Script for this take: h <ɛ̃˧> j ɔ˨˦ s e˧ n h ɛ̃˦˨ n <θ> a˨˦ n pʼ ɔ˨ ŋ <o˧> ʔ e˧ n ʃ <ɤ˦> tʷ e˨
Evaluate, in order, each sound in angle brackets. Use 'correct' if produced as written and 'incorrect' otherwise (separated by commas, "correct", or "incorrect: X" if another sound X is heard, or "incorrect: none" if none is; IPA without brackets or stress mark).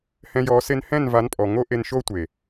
correct, incorrect: v, incorrect: o˦, incorrect: o˦